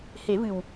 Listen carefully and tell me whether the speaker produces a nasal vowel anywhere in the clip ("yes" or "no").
no